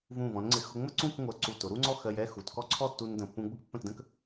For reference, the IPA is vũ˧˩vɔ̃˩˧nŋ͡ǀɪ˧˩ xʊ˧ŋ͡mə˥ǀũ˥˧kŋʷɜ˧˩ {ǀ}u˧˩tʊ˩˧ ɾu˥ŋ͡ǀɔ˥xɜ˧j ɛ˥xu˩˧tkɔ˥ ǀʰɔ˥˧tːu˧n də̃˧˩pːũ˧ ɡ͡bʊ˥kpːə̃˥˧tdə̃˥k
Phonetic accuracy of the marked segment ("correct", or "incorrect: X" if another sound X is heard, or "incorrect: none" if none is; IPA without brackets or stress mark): correct